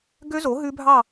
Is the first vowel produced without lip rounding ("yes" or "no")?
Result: no